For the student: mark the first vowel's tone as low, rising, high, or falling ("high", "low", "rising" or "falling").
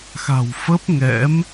low